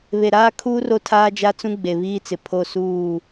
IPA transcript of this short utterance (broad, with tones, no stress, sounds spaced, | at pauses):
β e˨ ɾ aː˦ kʰ uː˦ r o˦ tʰ aː˦ d͡ʒ a˦ t͡s ũ˦ ɡ͡b e˨ β iː˦ t͡s ɪ˨ pʰ o˦˨ s uː˦˨